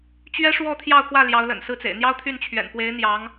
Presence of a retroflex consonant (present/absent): present